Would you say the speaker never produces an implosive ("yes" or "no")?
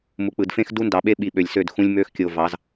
no